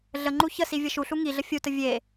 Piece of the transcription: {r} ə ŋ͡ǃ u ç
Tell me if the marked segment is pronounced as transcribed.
no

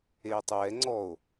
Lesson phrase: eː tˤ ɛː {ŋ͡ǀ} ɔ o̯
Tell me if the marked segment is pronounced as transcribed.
yes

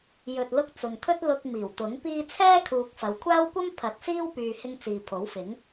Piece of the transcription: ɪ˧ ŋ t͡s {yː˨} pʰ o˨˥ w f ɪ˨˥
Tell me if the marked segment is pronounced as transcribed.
no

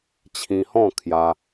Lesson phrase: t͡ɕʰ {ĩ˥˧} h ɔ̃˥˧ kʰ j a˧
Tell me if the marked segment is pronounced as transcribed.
no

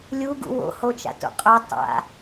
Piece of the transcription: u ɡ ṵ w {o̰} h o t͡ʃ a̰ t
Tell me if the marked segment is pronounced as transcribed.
yes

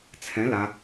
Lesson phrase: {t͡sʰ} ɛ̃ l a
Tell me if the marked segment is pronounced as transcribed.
yes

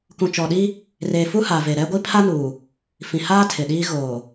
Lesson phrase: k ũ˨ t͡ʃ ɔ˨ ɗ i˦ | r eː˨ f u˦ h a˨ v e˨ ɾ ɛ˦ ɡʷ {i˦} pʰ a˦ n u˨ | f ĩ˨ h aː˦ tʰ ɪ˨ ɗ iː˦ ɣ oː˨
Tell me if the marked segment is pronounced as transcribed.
yes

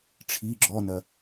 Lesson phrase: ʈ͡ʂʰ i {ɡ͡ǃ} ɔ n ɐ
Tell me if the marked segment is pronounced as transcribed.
no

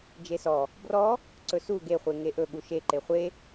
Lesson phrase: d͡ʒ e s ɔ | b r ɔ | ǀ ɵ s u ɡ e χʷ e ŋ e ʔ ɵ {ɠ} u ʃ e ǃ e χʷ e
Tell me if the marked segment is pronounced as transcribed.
yes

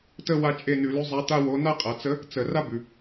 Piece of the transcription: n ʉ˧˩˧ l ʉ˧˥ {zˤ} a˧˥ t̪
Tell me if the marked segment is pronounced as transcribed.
yes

